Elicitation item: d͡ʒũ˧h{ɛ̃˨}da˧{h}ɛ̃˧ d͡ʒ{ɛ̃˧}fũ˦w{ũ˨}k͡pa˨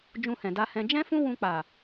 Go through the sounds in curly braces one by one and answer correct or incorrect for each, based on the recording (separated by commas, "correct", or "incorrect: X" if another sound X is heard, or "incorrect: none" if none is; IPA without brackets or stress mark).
correct, correct, incorrect: ɛ̃˦, incorrect: ũ˧